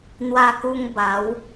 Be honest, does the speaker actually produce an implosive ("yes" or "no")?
no